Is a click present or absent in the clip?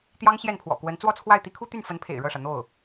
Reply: absent